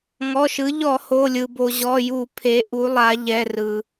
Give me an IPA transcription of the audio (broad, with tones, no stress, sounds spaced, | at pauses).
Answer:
ŋ ɔ˩˧˩ ʃ ɯ˩˧ ʎ ɔ˧˩˧ h o˩˧˩ lʲ ɯ˩ b o˩ ʑ ɔ˩˧˩ j u˧˩˧ pʰ e˩˧ ʔ u˩˧ lˠ a˩˧ ʎ ɛ˩˧˩ r ɯ˩